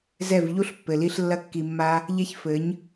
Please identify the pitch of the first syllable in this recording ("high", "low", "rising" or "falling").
falling